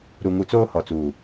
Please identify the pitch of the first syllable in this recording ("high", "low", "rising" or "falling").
low